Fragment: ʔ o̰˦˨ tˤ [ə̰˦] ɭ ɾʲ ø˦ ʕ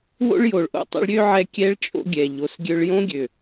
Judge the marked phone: correct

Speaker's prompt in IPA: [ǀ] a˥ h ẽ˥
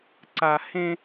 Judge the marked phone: correct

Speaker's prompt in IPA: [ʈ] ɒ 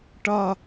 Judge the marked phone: correct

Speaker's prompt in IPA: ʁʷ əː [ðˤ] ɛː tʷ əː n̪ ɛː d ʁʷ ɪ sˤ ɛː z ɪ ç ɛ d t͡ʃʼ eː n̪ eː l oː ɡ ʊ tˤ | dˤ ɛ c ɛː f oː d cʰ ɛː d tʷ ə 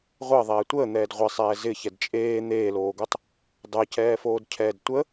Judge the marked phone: correct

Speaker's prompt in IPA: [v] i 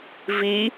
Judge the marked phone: correct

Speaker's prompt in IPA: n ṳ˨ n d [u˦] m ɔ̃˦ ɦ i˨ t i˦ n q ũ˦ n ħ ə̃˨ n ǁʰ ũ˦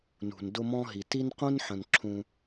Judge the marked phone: incorrect: ʊ˦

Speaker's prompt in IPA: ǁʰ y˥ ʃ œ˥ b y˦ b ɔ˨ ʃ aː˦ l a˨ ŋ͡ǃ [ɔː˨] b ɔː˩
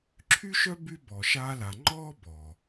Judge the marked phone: incorrect: ɔː˥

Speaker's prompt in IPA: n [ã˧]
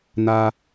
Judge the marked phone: incorrect: a˧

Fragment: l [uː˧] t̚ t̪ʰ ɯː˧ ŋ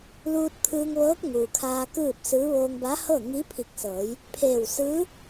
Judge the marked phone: correct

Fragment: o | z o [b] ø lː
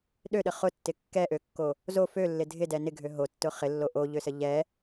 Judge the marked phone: incorrect: f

